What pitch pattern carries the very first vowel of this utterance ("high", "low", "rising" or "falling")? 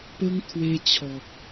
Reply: high